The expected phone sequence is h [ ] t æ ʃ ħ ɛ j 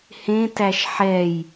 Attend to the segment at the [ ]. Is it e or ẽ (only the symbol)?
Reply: ẽ